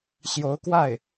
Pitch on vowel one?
rising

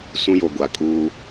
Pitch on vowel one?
high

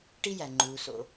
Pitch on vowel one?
high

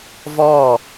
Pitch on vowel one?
falling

